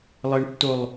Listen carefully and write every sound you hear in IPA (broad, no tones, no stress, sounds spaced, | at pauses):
lˠ ɘ ɳ tː o lˠ